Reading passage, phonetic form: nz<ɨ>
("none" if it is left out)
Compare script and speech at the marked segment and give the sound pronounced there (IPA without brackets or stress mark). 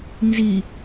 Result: i